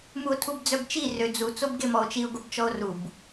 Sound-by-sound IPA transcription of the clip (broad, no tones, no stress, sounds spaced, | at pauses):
m u o̯ tʰ u b d͡z œ b t͡ʃ i r ø d͡z u t͡s o b ɡ e m ɔ o̯ t͡ʃ i o̯ ɡ o b t͡ʃ ɔ o̯ r u b